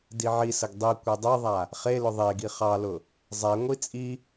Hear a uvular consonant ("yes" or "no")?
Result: yes